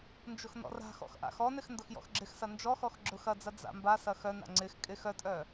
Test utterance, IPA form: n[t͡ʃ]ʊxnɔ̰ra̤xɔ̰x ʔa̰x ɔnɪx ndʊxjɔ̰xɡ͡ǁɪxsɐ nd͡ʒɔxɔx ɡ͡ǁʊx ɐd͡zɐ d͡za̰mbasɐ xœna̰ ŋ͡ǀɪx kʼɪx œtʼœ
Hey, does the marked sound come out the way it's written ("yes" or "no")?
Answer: no